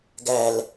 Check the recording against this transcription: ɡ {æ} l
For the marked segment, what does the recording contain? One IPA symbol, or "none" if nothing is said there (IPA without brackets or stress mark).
æ